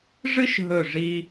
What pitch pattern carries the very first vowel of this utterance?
high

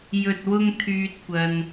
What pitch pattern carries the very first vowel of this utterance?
low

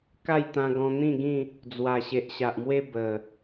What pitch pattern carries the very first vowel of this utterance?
falling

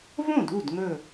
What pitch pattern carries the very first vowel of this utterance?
falling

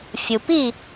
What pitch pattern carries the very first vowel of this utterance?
low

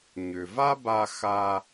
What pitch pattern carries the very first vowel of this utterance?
low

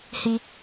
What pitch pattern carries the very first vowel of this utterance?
high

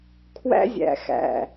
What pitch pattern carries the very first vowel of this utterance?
high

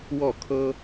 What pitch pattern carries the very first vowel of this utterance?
falling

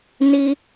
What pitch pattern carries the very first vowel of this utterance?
low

